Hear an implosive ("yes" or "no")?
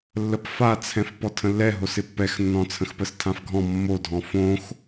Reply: no